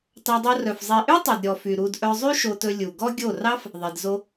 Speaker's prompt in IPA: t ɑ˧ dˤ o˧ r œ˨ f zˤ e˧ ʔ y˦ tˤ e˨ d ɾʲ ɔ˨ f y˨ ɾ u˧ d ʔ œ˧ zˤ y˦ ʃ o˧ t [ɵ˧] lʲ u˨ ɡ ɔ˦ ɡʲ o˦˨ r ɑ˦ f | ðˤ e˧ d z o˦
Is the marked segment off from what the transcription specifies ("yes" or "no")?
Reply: no